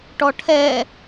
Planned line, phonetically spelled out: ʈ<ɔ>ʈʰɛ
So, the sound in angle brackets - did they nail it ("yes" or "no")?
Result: yes